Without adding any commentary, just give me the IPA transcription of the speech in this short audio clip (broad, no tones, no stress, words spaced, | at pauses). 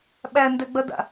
ɓændɛɡ͡bɐda̰